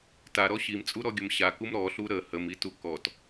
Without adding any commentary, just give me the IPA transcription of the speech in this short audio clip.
taɾɔ ɕimt͡sʼuɾɔɡʲəm ɕakum ɾɔɬu ɾə həmitu kɔt

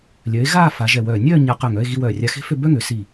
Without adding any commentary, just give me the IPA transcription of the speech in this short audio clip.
lʲœː˩˧e̯ ɣaː˥˧ fa˩˧ʒɛ˧˩wœː˧˩ nʲœː˥˧ ɲa˧qœ˧˩ŋ œ˥˧e̯ɣi˧ wœː˧˩rʲa˧xe̤˥fø˥˧ bœ˥ŋø˩˧ si˧˩

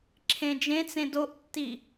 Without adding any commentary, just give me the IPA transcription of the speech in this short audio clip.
ǁʰẽd͡ʒẽt͡sẽ doʔtːi

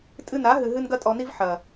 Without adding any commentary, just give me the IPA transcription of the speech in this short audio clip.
tʼɨ˧na˨˦ɦɨ˨ ɦɨ˦nɡɐ˦tʼɔ˧ni˦v ħɐ˨

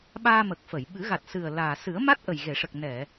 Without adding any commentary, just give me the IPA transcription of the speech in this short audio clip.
ɓaː˧mə˨˩k̚ fə˨˩˨j ɓɨ˨˩˦ɣa˨˩t̚sɨ˨˩ə̯ laː˨˩ sɨ˨˩˦ə̯ma˦˥t̚ ʔə˨˩jɣe˨˩˨ʂə˨˩k̚ nɛ˨˩˨

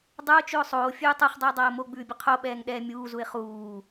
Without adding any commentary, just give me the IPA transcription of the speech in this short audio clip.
dˤə˞ʊ̯t͡ʃʉʊ̯ sˤoː fʲʉːtˤuχdˤuɪ̯ dˤʌːʊ̯moɡ͡bʉːbʲə qʰoɓɛːŋ ɗɛːmʲuːzuɪ̯ χuː

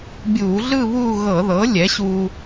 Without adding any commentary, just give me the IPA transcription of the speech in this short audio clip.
bʲuː˧˩˧ɮɯ˥˧ βuː˥˧ ɣɤ˧˩˧ðɤ˩˥ lʲɛ˩˥ɕuː˧

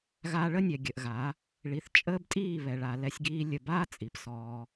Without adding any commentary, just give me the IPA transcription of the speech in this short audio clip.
ɣaː˧ ɭə˦nʲɛ˨ ɡʲə˨ʔɣa˨˦ | ɭi˨θt͡ʃʼəː˦btʼiː˦˨ βɛ˨ɭa˨ lɛ˧sʲɡiː˧lʲə˨baː˦ t͡sʼi˨psɔː˧

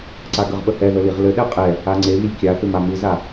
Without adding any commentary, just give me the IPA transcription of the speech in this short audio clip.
ǀaɡəʁɓə hɛðə liʁlɘɗɛ qʼɛ | aŋ͡ǀeβilʲ kʲaθʏ mamɯza

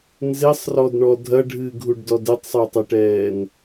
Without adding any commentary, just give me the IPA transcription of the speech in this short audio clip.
nzesˤrɔdɳɔ dʱɐɖʱɨːɡʱuɖdɔd ɘtˤsˤotˤɛʈɛːn

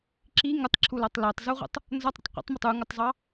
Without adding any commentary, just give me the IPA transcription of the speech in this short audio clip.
ǁi ŋətˤǁʰulɔtˤ lɜtˤzuʁʷə̰tˤ | nzɒtˤɾə̰tˤ qʷə̰tˤmʊtˤ uŋətˤzˤɑ

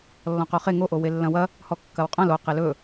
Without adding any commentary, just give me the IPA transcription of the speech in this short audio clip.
lːɔ̃qoχe ŋoʔo welːɐ̃wɐ | hɔkːɐwqʼɐ̃l o qelɵ

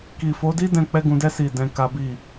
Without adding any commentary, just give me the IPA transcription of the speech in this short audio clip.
ki˨fo˨˦di˦dɛ̃˧ k͡pɛ˦ɡũ˧dɛ˦ si˦˨ dɛ̃˧ka˦bi˦˨

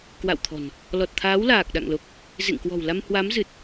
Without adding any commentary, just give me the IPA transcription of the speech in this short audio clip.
kwa̰˧˨wt̪ʰɔ̤˨˩n | lɔ˨˩t̚t̪ʰaː˨˦w laː˨˩k̚ɗa̰˧˨ŋlo˨˩k̚ | zḛ˧˨ŋkwɔ̤˨˩wla˧m hwa˨˦mzɨ˨˩t̚

